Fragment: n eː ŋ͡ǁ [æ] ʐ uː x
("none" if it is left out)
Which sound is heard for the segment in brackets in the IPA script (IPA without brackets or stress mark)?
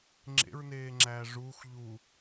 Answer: æː